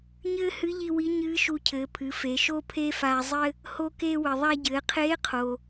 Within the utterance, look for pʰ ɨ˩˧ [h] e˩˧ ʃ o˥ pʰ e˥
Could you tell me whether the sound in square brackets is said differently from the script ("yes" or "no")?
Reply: yes